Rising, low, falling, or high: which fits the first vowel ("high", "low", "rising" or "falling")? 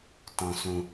low